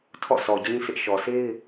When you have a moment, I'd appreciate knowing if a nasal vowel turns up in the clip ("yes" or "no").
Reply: yes